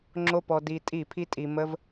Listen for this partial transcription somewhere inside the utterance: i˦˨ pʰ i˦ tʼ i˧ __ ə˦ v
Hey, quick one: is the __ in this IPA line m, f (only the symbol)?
m